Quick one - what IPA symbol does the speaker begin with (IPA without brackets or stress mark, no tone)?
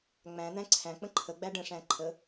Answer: ŋ͡m